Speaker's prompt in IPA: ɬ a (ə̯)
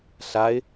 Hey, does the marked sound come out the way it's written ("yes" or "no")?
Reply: no